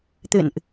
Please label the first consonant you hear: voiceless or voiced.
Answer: voiceless